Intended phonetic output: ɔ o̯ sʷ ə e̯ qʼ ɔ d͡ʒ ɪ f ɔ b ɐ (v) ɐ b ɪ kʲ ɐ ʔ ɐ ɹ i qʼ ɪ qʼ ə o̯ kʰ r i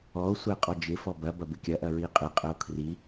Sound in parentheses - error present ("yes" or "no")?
yes